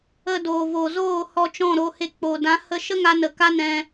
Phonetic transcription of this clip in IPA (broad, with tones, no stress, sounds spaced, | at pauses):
ə˧ d oː˨ v o˨ z oː˦˨ h ɔ˧ t͡ʃ ɔ̃˦˨ ɾ o˧ h e˧ k͡p o˨ d ã˨˦ h ə˧ ʃ ə˦ ŋ a˧ n ə˨ k a˦ n ɛ̃˧